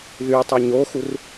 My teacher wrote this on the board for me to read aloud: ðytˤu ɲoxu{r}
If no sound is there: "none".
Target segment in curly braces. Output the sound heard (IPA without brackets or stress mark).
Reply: r